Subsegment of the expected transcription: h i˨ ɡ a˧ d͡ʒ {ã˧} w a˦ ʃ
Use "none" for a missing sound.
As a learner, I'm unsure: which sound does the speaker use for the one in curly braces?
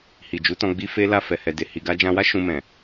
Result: ã˧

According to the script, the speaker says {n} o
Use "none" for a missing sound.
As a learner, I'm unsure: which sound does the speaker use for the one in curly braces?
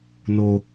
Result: n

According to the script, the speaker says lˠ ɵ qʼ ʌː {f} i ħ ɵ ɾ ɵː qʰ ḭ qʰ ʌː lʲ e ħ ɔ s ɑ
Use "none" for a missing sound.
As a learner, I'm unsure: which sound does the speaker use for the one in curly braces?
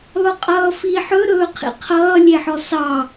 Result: f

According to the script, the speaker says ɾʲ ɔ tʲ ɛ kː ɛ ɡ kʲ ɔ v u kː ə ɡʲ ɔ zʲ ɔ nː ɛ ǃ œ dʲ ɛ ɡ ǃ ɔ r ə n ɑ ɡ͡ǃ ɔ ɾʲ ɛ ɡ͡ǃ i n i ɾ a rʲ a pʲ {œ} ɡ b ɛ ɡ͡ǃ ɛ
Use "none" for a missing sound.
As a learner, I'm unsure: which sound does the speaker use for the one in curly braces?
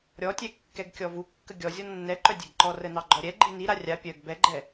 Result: œ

